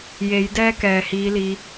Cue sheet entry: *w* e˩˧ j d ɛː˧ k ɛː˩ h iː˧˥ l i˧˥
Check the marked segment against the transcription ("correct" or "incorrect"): incorrect